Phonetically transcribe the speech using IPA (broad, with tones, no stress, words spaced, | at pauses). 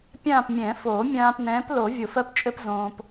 pʲãː˦˨pmʲɛ̃˨˩˦foː˨˩˦ mʲãː˨p nɛ̃ː˨˥plo˨˩˦ vʲo˨fɜ˥pt͡ʃʼɘ˥p zõː˨p